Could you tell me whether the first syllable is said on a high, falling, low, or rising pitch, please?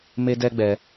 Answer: high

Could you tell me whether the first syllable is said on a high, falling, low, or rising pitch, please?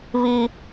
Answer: high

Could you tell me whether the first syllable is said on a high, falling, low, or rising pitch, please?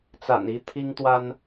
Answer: low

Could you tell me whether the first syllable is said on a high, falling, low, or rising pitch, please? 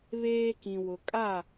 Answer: high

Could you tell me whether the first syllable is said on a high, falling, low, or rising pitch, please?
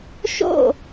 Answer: falling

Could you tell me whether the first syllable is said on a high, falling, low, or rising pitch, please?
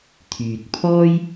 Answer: low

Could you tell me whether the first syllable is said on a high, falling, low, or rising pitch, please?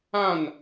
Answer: falling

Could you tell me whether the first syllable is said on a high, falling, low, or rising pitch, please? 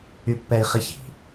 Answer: high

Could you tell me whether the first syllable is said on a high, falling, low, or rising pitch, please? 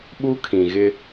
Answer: high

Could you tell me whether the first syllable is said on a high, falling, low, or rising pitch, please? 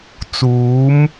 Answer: rising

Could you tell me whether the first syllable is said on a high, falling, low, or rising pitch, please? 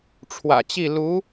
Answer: low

